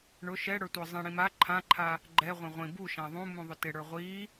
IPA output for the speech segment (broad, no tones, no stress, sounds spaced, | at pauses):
ɳ ʊ ʃ ɛ ɽ ə˞ tʷ ə˞ zˤ ĩ ɽ ĩ m a ǃʰ ã ǃʰ a | ɡ͡ǃ ɛ ʁʷ ɛ̃ ʁʷ ĩ b u ʃ ã ðˤ ũ m ũ ðˤ ʊ t ɪ ɽ ə˞ ʁʷ i